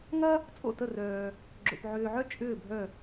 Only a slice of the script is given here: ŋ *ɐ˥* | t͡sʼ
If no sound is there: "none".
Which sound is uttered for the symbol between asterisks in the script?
ɐ˥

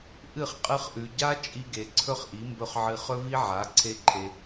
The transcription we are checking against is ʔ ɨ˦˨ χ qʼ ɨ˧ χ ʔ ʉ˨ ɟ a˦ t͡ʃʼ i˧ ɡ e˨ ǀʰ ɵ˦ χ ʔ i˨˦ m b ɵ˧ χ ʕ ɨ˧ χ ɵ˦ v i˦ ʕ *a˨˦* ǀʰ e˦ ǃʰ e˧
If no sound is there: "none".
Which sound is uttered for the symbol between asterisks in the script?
a˨˦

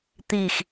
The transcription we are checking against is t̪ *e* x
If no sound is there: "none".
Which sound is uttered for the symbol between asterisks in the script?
i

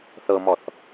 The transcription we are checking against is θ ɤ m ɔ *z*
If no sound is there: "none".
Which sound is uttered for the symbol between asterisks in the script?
θ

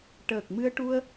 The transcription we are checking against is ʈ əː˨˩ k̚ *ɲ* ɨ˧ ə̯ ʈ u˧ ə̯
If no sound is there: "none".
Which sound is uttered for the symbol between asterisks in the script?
m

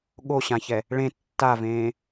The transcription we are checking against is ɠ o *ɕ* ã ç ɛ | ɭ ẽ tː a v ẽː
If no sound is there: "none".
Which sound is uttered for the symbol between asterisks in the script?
ɕ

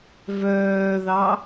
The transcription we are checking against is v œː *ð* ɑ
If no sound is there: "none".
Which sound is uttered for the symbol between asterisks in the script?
ð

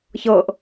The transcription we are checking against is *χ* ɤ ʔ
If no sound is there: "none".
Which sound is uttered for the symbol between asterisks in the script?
ç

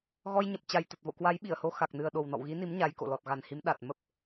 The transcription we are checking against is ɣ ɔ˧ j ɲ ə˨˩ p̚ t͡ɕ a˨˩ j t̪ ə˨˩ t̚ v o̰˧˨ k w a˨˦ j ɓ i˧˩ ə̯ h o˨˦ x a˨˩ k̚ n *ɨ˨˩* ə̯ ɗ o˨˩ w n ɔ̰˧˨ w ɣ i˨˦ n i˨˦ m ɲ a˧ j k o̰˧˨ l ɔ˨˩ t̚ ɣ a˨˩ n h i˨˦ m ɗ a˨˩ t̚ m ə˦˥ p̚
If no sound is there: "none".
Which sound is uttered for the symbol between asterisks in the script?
ɨ˨˩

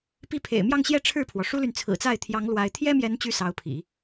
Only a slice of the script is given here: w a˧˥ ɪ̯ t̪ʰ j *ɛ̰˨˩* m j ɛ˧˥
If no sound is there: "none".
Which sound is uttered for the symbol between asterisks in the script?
ɛ˥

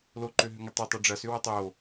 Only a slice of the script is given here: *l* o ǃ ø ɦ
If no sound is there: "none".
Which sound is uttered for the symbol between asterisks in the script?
l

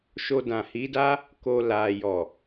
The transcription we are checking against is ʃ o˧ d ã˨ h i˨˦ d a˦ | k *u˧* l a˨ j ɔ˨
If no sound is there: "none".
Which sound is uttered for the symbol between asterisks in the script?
o˧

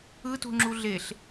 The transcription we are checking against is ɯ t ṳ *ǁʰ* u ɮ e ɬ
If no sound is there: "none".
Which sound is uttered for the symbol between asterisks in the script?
ŋ͡ǁ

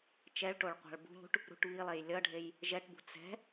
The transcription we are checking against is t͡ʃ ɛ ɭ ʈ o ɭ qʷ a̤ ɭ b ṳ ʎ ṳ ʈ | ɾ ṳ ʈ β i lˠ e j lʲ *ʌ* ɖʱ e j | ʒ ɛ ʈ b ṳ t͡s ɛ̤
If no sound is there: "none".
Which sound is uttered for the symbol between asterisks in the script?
ʌ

